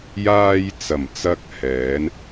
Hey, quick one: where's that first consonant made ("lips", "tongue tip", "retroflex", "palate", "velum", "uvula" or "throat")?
palate